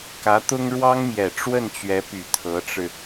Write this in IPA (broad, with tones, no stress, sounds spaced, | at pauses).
k ä˧˥ t̪ ʊ˥ ŋ ɻ w ɑ˥ ŋ m j ɛ˨˩ ʈ͡ʂ w ə˥˩ n t͡ɕ ɥ ɛ˧˥ p y˨˩ t̪ʰ ɤ˧˥ ʈ͡ʂ ɻ̩˧